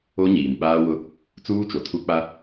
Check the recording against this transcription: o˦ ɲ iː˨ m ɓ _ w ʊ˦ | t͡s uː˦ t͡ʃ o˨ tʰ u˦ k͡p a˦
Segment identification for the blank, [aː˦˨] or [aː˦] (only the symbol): aː˦